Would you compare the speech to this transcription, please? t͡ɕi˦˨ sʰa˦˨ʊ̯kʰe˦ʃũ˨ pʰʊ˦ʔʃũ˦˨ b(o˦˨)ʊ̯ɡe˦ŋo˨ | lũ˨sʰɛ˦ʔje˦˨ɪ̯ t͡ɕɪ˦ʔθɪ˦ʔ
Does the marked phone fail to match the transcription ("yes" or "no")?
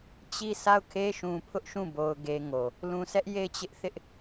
yes